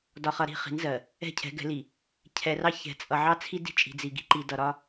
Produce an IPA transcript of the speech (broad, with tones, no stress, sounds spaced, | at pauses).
d ɒ˨ χ ʌ˨ ɾ i̤˦˨ χ i̤˨˦ n z ɜ˨ | ɛ̤˦˨ cʰ ɛ̤˨˦ ɡ ɛ̤˨˦ l i˨ | cʰ ɛ˨ r ɑ˦ ç ɛ̤˨ t͡sʼ ʌ˨ ʕ ɑ˦ t͡sʰ i˦ d i̤˦˨ t͡ʃʼ i̤˨ d͡z i˨ ɡ i̤˦ ǃ i˨ d ʌ˨ ɾ ɒ˦